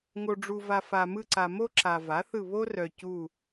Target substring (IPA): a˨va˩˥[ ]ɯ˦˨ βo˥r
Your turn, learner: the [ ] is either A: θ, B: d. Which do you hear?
A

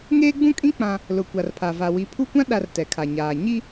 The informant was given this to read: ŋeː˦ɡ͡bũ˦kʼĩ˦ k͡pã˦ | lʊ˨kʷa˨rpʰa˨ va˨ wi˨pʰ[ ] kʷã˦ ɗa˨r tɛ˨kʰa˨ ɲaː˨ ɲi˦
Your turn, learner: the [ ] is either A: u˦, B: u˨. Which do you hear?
A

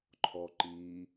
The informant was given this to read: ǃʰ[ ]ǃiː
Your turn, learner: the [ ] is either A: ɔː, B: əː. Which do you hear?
A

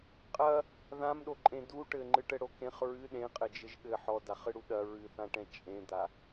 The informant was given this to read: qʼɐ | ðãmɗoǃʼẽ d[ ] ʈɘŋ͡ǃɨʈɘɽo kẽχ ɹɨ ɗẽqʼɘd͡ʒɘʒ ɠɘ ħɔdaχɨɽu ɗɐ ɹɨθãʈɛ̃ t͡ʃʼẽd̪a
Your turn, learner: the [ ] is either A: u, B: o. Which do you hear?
A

